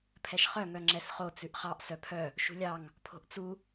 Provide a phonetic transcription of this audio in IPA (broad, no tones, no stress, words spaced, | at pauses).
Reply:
pʰɛʃχœ ŋœŋ͡ǁɛsχo t͡sʉʔχɑʔ sœpʰœ | ʃṳlʲɑŋ | pʰo̤ʔt͡su